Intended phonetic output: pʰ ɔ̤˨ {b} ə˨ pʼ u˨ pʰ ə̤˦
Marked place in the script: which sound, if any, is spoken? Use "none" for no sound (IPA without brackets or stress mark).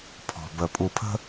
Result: b